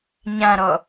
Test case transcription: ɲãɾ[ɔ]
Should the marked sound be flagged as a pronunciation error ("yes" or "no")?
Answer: no